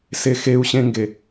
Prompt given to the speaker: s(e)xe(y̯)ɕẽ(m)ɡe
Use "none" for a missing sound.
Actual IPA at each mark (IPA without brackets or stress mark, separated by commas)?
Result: e, u̯, ŋ